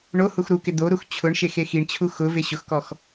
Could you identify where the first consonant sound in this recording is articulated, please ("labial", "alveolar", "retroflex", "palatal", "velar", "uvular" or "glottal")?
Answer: retroflex